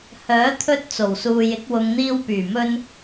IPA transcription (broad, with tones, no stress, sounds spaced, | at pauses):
h œː˨˥ t̪ʰ ɵ˧ t̚ t͡s o˨˩ w s uː˨ j ɪ˨˥ k̚ w ʊ˨˧ ŋ n̪ iː˧ w p yː˨˩ m ɵ˧ n